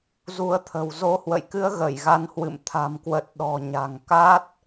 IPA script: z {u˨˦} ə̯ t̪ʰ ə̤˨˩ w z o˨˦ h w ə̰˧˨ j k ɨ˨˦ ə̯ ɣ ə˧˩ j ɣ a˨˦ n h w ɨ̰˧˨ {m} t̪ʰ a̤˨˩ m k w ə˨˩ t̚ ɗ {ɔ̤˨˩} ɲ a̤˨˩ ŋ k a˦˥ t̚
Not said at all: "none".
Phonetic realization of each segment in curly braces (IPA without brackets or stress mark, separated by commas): u˨˦, m, ɔ̤˨˩